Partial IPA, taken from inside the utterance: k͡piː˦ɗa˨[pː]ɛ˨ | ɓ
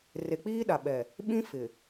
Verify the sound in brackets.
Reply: incorrect: ɓ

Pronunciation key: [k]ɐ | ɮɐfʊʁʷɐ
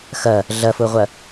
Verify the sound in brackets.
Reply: incorrect: x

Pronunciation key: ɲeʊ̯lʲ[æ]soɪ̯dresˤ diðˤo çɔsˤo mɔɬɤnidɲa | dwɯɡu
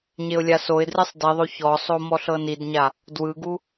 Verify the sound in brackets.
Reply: incorrect: a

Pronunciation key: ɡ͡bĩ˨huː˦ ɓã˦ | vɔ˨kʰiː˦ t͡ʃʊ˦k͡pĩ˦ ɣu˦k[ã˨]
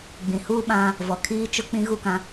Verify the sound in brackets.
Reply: incorrect: ã˦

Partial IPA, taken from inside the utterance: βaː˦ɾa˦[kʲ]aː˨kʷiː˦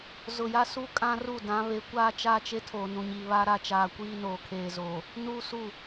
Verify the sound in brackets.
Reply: incorrect: t͡ʃ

